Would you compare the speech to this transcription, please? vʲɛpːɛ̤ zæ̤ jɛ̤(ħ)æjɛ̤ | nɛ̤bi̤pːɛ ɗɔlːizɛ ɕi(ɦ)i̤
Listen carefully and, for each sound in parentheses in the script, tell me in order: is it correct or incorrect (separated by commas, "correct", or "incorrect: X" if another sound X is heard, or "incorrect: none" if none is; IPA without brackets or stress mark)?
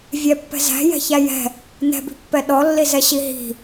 incorrect: ç, correct